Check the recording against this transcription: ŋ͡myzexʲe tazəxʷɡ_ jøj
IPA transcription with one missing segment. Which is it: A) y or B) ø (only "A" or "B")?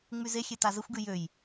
A